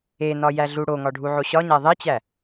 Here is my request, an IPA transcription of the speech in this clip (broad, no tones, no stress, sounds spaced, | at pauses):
e n ɒ j æ ɮ u ɽ o ŋ ɒ ɖʱ u ʕ o ɕ ɒ ɲ æ ðˤ i t͡ɕ æ